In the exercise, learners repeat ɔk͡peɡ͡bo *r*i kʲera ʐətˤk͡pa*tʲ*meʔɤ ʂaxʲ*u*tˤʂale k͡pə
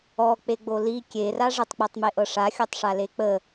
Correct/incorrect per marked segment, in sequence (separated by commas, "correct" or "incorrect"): incorrect, incorrect, incorrect